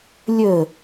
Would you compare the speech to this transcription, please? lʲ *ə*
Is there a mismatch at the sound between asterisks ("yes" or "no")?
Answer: no